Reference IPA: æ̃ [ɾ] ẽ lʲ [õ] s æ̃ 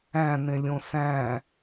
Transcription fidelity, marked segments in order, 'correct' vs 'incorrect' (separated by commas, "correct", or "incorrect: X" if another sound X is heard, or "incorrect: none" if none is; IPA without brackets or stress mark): incorrect: n, correct